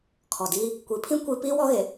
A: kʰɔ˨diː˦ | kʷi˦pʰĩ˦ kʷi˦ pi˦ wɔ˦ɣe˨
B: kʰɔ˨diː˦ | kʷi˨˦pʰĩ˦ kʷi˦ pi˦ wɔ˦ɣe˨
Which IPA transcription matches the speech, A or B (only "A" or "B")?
B